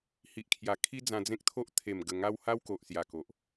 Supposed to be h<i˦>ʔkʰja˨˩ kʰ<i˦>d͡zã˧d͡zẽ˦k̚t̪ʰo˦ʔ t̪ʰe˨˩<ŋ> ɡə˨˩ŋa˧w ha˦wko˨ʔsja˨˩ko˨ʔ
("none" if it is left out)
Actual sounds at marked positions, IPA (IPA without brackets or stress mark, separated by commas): i˨, i˦, m